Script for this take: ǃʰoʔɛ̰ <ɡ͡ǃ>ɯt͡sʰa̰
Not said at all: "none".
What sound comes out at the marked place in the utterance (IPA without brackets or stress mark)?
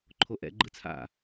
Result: ɡ͡ǃ